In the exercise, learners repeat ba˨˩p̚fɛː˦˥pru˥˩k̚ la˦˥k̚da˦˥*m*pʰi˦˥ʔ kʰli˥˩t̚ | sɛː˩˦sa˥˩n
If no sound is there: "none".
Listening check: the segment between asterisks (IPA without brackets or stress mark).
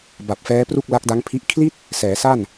ŋ